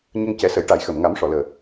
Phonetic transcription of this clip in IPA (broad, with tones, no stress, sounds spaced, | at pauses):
ɲ ə˧ ŋ c ɛ˨˩˦ s ə˨˩˦ j ʈ a˨˩˦ j x əː˨˩˨ m ŋ a˨˩˦ m ʂ ɔ˨˩˨ l əː˨˩